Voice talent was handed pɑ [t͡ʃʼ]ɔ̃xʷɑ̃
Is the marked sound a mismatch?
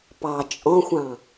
no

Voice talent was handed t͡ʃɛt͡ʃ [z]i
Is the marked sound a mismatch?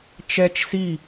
yes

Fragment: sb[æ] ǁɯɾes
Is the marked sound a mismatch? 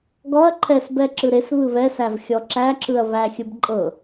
yes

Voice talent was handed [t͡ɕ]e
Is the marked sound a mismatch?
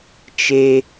yes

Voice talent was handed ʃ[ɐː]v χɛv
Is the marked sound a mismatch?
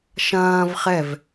yes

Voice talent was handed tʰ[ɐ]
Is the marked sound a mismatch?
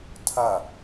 no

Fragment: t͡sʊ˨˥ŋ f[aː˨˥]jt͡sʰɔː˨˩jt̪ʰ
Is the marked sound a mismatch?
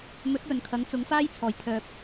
yes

